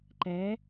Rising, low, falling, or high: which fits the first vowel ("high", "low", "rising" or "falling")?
rising